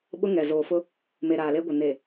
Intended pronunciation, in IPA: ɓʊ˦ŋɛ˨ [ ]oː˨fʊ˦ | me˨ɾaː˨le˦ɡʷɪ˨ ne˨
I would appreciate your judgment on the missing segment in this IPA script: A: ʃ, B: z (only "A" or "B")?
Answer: B